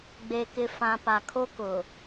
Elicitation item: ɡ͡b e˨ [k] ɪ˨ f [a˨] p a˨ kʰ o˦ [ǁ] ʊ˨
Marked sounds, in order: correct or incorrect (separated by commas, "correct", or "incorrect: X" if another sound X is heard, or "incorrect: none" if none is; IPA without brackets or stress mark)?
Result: correct, incorrect: ã˨, incorrect: k